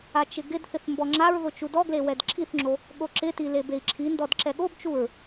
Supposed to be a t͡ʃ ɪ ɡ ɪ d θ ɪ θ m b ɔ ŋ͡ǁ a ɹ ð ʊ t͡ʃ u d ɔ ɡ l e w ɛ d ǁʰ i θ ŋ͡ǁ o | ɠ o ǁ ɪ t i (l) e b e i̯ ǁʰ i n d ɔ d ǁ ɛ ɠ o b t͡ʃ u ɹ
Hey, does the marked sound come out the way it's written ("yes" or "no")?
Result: yes